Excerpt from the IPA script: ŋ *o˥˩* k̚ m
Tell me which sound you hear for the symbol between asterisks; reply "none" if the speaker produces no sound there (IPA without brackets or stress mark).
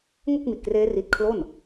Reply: o˥˩